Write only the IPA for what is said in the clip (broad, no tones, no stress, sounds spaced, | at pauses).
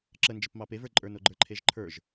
ǁ ə n d͡ʒ ə p m ɑ p e v ə˞ ǃʼ ə˞ n o ɡ͡ǃ ə˞ ǃʰ e ʒ ǃʰ ə˞ ʒ